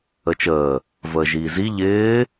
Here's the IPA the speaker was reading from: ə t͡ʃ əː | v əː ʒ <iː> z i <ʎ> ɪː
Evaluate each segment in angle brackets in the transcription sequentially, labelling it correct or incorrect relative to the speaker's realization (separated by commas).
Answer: correct, correct